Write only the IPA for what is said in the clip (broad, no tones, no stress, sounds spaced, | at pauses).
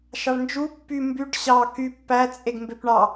ʃ ɑ ɭ n d͡ʒ u pː y m b y ɖ ɕ ɑ k y pː æ t͡sʼ e ɡ m b e p ɳ ɑ